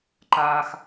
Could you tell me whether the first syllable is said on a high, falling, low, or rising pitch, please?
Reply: low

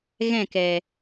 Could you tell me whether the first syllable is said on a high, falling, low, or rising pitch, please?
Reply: falling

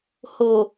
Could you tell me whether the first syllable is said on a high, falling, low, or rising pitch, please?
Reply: low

